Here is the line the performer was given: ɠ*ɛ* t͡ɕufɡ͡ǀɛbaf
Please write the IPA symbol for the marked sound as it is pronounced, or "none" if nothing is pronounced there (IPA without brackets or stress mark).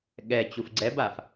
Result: ɛ